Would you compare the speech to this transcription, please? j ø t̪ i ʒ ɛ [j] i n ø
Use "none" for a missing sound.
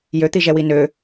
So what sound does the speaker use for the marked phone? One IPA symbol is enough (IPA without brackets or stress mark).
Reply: w